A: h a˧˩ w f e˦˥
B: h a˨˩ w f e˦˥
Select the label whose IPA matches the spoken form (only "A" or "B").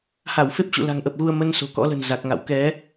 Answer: A